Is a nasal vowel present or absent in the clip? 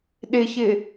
absent